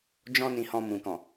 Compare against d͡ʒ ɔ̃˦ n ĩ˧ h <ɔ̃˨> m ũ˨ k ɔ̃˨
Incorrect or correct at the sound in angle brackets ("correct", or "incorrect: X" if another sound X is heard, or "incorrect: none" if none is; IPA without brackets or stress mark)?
incorrect: ɔ̃˧